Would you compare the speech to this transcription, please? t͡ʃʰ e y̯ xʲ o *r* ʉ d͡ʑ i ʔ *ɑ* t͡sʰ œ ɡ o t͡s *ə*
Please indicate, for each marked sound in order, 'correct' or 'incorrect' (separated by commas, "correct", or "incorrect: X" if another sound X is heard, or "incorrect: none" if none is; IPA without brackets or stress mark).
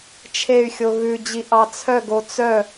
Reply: incorrect: ɣ, correct, incorrect: œ